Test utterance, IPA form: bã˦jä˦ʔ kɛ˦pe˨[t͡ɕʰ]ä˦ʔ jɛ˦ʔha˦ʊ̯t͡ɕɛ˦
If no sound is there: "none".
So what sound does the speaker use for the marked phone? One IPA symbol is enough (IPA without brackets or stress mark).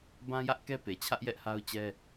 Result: t͡ɕʰ